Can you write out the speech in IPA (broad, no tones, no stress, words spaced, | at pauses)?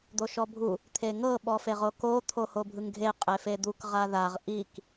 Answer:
d̪oʃɔbʱu | t̪ʰeŋɤ ɓɔfeʁoko t̪ʰohobʱɯŋɡʱe qʼefed̪uk ʁaðaʁ ʔik